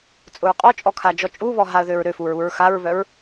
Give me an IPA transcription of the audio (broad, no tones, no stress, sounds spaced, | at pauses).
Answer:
t͡sʼ ʊ ɹ qʼ ɔ t͡ʃʼ ɔ kʰ a d͡ʒ ɔ t͡ʃʼ u β ɔ ɦ a ə̯ ð ø ɹ ɾ ø f u ɹ u ɹ x a ɹ β œ ɹ